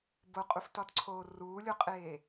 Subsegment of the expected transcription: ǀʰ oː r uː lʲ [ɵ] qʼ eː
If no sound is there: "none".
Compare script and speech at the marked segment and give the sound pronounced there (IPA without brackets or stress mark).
o